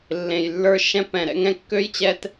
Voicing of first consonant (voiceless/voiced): voiced